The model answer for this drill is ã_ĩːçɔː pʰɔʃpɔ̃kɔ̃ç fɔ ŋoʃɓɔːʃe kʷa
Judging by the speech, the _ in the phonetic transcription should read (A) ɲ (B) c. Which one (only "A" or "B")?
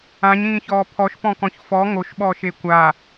A